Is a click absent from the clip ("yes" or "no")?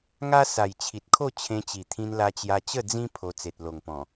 yes